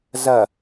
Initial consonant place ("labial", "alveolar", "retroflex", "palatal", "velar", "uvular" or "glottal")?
alveolar